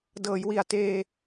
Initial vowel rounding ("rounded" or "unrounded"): unrounded